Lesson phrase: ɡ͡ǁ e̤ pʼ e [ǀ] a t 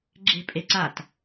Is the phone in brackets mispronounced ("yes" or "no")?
no